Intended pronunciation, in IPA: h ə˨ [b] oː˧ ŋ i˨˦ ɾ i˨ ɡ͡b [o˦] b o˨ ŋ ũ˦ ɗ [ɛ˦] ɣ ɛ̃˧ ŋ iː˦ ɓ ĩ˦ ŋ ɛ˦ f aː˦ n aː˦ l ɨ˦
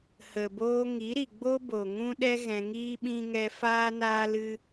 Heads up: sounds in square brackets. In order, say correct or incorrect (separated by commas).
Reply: correct, correct, correct